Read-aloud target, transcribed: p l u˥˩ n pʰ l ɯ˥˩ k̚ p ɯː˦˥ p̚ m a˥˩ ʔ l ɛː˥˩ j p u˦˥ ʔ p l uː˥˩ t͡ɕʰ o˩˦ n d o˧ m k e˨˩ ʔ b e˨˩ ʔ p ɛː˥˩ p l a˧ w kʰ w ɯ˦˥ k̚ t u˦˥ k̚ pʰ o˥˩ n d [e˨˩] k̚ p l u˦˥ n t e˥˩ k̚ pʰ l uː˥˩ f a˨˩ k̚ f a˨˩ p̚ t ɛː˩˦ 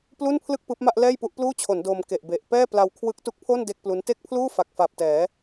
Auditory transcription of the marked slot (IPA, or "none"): e˥˩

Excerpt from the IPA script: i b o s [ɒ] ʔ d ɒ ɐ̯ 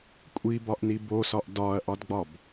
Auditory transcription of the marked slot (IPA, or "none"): ɒ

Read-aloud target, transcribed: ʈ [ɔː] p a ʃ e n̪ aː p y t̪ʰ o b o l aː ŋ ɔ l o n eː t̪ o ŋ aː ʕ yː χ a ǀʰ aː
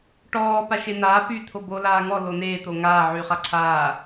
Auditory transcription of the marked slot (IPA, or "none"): ɔː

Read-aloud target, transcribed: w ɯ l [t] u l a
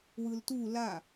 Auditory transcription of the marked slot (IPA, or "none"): t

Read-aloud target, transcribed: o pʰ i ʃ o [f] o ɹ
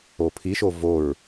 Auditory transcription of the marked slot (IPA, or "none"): v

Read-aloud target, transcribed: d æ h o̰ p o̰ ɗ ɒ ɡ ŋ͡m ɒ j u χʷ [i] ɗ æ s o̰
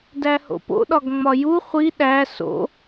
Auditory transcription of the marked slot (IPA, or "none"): i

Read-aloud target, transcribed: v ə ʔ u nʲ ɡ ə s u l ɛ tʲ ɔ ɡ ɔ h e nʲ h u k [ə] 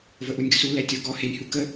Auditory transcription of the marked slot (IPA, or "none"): ə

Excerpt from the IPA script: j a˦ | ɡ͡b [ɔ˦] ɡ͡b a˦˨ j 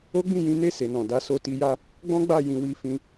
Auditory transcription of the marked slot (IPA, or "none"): ɔ̃˦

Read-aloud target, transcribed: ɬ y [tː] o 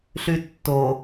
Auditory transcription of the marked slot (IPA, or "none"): tː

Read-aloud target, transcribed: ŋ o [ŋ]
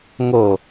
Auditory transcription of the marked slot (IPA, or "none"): none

